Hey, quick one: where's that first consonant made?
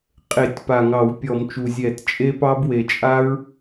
uvula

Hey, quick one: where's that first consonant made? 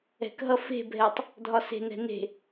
velum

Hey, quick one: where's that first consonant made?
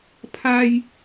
lips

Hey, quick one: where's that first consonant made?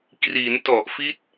velum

